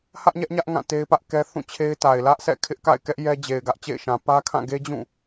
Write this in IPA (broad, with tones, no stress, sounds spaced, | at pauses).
h ä˦ ʔ ɲ ɛ˦ ʔ ɲ ä˦ ʔ ŋ ã˦˨ t e˦ ɪ̯ p ä˦ ʔ k ɛ˦ θ ũ˦˨ t͡ɕʰ e˦ ɪ̯ t a˨ ɪ̯ l ä˦ ʔ s ɛ̰˦˨ kʰ ɪ˦ ʔ k a̰˦˨ ɪ̯ k ɛ˦ ʔ j ɛ˦ d͡ʑ e˨ ɪ̯ ɡ ä˦ ʔ t͡ɕ ḛ˦˨ ɪ̯ ʃ ã˨ p ä˦ kʰ ã˦˨ ɡ e˦ d͡ʑ ũ˦˨